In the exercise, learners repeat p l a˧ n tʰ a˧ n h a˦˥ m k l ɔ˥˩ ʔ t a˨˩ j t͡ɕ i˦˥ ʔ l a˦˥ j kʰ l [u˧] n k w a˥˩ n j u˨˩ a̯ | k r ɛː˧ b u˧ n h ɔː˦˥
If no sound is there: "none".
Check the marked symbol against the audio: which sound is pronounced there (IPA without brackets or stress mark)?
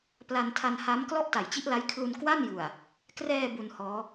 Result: u˧